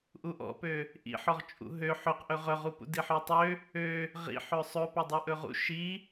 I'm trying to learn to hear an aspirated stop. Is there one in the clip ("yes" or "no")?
no